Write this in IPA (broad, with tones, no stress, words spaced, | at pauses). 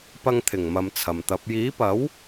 pɐ˧ŋt̪ʰɪ˨˩ŋmɐ˨m t͡sʰɐ˨mt̪ɐ˨˥p̚ jiː˨˥pɐ˨˥w